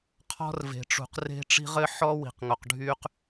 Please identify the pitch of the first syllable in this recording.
high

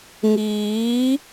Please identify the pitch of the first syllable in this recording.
rising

